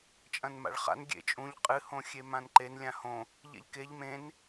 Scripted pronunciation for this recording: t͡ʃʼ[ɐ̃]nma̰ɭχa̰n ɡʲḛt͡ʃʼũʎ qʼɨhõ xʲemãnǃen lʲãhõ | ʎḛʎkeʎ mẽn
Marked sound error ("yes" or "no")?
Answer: no